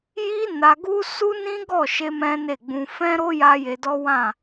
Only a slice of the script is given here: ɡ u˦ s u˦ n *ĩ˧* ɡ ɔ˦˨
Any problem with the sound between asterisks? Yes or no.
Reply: yes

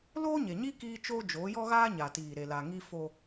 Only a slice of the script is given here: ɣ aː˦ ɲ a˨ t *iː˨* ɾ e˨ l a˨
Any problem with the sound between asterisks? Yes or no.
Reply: no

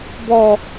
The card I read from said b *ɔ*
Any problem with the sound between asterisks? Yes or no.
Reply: no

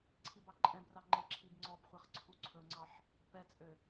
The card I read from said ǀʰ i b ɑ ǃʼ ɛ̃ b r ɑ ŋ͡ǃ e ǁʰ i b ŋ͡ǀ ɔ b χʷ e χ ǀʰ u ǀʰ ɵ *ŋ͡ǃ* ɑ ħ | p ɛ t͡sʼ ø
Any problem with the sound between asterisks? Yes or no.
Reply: yes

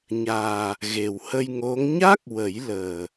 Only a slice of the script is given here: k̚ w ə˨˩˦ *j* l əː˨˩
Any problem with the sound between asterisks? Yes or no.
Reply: no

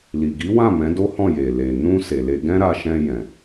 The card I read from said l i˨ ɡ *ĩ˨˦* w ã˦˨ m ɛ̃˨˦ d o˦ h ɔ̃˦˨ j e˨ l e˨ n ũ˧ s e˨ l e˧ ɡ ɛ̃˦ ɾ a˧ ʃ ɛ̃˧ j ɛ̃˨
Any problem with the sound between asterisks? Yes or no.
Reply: yes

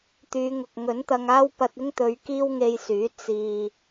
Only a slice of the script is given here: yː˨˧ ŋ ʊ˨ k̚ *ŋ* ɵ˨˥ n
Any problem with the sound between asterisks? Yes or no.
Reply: no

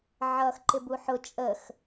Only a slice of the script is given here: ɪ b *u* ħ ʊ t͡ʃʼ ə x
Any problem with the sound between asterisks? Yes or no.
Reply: no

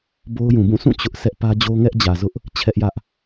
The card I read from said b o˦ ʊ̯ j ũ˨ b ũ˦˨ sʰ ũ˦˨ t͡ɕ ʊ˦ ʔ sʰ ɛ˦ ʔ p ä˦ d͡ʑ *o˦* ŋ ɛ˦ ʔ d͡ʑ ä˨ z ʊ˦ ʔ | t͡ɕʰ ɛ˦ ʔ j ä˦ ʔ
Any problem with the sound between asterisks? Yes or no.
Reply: no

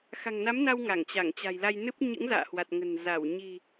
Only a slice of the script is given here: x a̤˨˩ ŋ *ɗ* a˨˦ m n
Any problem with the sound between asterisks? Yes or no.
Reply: yes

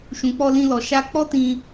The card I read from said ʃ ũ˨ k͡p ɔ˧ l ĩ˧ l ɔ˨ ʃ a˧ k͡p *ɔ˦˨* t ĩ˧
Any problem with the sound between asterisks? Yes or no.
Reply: yes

